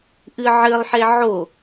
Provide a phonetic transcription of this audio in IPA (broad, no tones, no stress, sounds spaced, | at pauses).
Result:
ʔ ɨ ʕ ɘ lˠ ħ e ʕ o